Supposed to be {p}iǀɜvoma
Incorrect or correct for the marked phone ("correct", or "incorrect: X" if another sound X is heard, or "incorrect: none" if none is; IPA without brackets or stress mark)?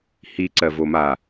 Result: incorrect: h